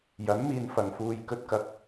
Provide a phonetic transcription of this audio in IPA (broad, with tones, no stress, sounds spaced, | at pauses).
j ɐ˨˥ n m iː˨ n f ɐ˨˩ ŋ f uː˨ j k ɵ˨ t̚ k ɐ˨ k̚